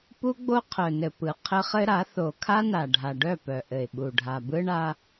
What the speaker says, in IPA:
p u˦ ɡ͡b o˦ qʰ œ˨ n ɘ˨ p ɯ˨ qʰ ɘ˦ χ ɘ˦ ɾ a˨˦ θ o˨ kʰ a˦ n a˨ ɖʱ a˨ ɖ œ˦˨ p œ˨ ʔ ɘ˨ ɪ̯ ɓ u˨ ɖʱ a˨ b ɯ˦ ɳ a˦

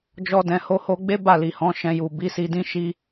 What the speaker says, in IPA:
d͡ʒ ɔ˧ d ɛ̃˨ h o˨˦ h o˧ ɡ͡b e˦ b a˦˨ l i˨ h ɔ̃˨˦ ʃ ɛ̃˧ j u˨ b i˨˦ s i˧ d ĩ˦ ʃ i˦

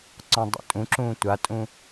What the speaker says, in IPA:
ǀ ɔ̃ dˤ ṵ tʼ ũ ǁ ũː tʷ a tʼ ũ

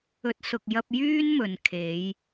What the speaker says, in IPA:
ɵ˨˥ t̚ s ʊ˨ k̚ j ɐ˧ p̚ j yː˥ n m ɵ˨ n kʰ e˨˧ j

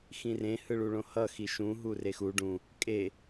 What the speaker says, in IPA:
x ĩ r ẽ h ɯ ɭ u ɭ õ h ʌ x i ʃ ũ ɦ u r e x u ɖ ũ | kʼ e

